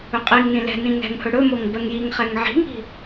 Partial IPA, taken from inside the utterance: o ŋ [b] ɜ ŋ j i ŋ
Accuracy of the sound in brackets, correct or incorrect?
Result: correct